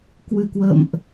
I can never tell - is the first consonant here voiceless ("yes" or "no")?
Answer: yes